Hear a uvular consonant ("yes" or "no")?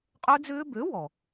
yes